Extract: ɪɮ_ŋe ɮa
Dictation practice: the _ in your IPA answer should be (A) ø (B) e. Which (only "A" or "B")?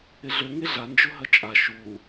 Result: A